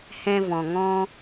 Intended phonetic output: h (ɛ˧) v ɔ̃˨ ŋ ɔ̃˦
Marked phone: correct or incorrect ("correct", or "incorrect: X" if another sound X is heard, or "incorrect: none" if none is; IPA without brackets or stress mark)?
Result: incorrect: ɛ̃˧